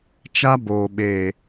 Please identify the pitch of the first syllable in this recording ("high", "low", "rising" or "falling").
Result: high